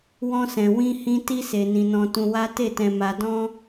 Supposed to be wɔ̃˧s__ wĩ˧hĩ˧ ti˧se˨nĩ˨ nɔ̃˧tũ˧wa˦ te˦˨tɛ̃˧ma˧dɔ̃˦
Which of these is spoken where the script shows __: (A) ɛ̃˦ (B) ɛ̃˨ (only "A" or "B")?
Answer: B